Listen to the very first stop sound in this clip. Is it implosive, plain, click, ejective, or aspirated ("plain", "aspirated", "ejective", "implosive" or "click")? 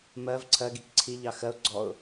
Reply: click